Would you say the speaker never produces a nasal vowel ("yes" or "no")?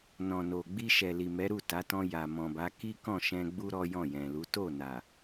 no